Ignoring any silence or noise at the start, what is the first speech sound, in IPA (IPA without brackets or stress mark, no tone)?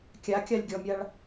kʲ